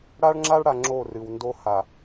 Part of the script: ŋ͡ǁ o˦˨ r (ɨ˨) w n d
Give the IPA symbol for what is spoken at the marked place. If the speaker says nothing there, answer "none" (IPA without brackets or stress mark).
ɨ˨